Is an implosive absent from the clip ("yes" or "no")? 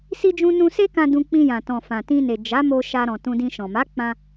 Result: yes